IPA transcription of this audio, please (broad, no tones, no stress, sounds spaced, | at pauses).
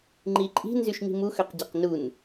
ŋ͡ǃ i ǃʼ i̤ n z y ʃ ɲ i̤ m u x ø q ɟ æ q n u n